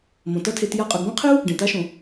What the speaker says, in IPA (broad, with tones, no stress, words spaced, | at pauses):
mõ˩tɐ˧˥tʰe˩˧t ja˧qʼɵ˩˧ɡbõ˥qʰe˥u̯ | ɖẽ˩ta˧˥ʃõ˩